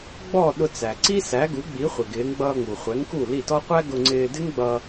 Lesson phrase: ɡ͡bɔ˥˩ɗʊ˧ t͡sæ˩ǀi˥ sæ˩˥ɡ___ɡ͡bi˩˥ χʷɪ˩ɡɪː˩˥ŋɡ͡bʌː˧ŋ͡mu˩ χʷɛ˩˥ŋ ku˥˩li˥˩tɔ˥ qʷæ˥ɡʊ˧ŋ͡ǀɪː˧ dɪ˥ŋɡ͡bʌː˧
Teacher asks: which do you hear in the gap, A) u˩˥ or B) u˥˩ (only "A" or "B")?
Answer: A